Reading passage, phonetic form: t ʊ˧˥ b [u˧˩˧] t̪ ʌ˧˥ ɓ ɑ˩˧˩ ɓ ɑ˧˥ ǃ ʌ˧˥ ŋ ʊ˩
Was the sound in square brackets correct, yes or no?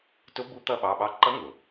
no